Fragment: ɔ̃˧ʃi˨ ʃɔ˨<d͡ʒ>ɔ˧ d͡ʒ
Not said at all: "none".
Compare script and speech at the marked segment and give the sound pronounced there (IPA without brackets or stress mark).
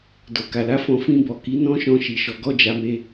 ɡ